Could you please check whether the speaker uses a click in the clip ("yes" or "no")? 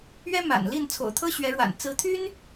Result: no